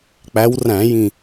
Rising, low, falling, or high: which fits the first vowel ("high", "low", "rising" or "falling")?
rising